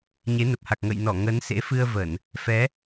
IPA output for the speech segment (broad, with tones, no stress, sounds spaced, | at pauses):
ɲ e˨˦ n ə˨˩ p̚ h a˨˩ k̚ ŋ ə̰˧˨ j n ɔ˧˩ ŋ ə˨˦ n s ḛ˧˥ f ɨ˧ ə̯ v ə˧˩˨ n | f ɛ˨˦